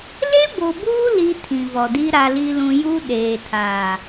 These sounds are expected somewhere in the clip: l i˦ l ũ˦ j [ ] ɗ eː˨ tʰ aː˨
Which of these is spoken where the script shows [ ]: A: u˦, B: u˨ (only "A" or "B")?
A